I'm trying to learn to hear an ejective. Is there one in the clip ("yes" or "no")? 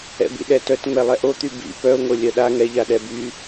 no